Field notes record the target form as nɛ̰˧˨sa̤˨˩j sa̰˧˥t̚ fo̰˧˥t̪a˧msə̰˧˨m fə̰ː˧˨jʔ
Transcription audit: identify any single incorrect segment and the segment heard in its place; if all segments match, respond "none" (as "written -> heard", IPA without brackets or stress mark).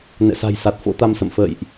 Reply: a̰˧˥ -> a˨˩